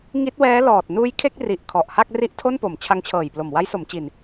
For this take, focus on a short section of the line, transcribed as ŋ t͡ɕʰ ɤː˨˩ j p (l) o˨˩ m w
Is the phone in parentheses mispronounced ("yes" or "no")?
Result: no